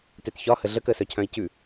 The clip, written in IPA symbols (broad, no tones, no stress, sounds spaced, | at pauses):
t e t ç ɒ h ə ɮ ə k ə s œ cʰ œ̃ i̯ c ʉ